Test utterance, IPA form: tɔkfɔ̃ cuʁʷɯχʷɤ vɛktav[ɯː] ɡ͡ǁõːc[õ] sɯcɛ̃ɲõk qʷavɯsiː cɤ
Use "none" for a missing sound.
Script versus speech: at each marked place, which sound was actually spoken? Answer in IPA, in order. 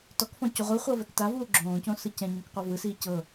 uː, õ

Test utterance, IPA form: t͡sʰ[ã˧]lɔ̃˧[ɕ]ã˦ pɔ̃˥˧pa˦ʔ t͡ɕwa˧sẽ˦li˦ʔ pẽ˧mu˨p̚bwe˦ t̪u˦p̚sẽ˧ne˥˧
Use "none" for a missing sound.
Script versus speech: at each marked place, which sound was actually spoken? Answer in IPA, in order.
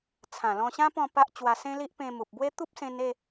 ã˨˩, ɕ

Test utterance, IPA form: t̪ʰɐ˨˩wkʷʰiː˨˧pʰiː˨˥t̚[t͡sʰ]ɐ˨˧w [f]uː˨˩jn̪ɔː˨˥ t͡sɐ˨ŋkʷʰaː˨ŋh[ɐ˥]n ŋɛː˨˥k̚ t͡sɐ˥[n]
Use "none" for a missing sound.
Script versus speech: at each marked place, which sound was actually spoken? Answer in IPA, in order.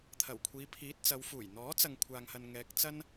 t͡s, f, ɐ˨, n

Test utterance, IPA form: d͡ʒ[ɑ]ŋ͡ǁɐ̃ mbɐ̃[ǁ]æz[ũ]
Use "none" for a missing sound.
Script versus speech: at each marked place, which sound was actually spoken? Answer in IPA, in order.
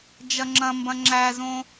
ɐ, ŋ͡ǁ, õ

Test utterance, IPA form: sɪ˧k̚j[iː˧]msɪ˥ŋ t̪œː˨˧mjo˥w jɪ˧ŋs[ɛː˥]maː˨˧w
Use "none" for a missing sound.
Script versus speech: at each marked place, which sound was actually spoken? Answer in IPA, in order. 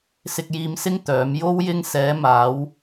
iː˧, ɛː˨˧

